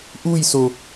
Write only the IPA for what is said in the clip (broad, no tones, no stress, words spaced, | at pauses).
ʔujso